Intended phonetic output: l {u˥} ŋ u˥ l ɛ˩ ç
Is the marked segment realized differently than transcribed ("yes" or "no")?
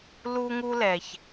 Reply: no